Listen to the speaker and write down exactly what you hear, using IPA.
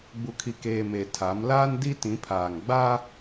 ɡ͡b u˨ kʰ i˨ k eː˨ m e˨ tʰ a˨˦ m l aː˦ n d i˦ t ĩ˨˦ pʰ aː˨ ŋ ɡ͡b a˦

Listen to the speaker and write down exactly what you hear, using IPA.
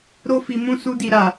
ɾ o˧ f i˨ m ũ˧ s u˧ d i˨ ɾ a˨

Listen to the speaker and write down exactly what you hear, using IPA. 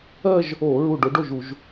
ɜ˥˧ ʒ | o˧˩˧ ɹ u˧˩ ɖ o˨˦ ɖ o˥˩ ʒ u˧˩˧ ʒ

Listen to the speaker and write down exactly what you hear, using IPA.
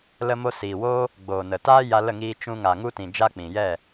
l ə˧ m o˧ s i˨ w o˦ | ɡ͡b oː˨ n ə˨ t aː˦ j a˧ l ə˦˨ ŋ iː˧ t͡ʃ ũ˧ ŋ a˨ ŋ u˧ t ĩ˨ d͡ʒ a˧ k͡p ĩ˨ j ɛ˦˨

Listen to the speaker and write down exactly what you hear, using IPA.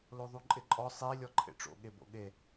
l o ðˤ u ǃʼ ɪ ǃʼ ɔ sˤ i lʲ ɔ ǃʰ ḛ ʈ͡ʂ o̰ ɠ e b o̰ ɠ e

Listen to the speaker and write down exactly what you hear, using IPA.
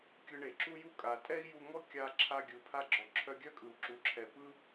kʲ ɯ˧ ɳ e˩ ǁ u˥ j u˥ kʼ a˩ tʼ ɛ˥ i̯ j u˧ ŋ ɔ˥ kʲ a˧ ǁʰ a˧ ɡʲ ɯ˩ pʰ a˧ ɡ͡ǁ ɔ˩ ǁʰ œ˧ ɡʲ œ˥ kʼ ɯ˩ u̯ ǁ u˩ ǁʰ ɛ˩ p ɯ˥

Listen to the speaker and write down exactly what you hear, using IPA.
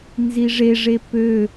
n z i ʐ e ʐ e p ø

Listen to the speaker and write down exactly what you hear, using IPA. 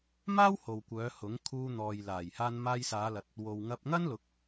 m aː˥ w h o˨ w kʷ œː˨˧ h ʊ˨˥ ŋ kʰ uː˧ n̪ ɔː˨ j l aː˨˩ j h aː˧ n m aː˧ j s aː˨˧ l ɐ˨ t̚ | w o˨ w ŋ ɐ˧ p̚ ŋ ɐ˥ n l ʊ˨˥ k̚

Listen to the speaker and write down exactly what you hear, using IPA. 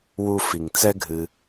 w u˨ f i˩ ŋ t͡s ɛ˦ ɡʱ ɨ˨

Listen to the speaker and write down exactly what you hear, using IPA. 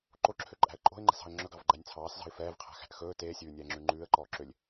ǃ o ǁʰ ø ǃʼ æ̤ ə̯ ǃʼ o̤ ɪ̯ ŋ͡ǃ ɛ̤ s ɑ̤ ə̯ ŋ͡ǁ ɵ ɡ ɑ v ɡ͡ǃ æ nʲ t͡sʰ ɑː s z ɑ̤ ɪ̯ f ɛː v qʰ æ̤ x æ̤ ʔ x ɵː t eː sʲ ʉː nʲ ɛː ŋ͡ǁ ʉ ŋ͡ǃ ʉː ə̯ ǃ ɔː ǁ ø lʲ

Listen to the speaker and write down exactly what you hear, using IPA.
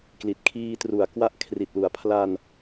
k l i˨˩ t̚ kʰ iː˧ t r u˩˦ a̯ k w a˦˥ ʔ kʰ r i˨˩ t̚ l u˩˦ a̯ pʰ l a˧ n

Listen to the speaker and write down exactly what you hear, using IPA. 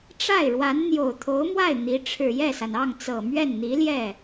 ʈ͡ʂ a˥˩ ɪ̯ ɻ w a˧˥ n n̪ j o˨˩ ʊ̯ t̪ʰ o˧˥ ʊ̯ m w a˥˩ ɪ̯ n̪ i˧˥ ʈ͡ʂʰ ɻ̩˨˩ j ɛ˥˩ s a˩ n ɑ˥˩ ŋ t͡s ɤ˨˩ m ɥ ɛ˥˩ n n̪ i˧˥ l j ɛ˥˩

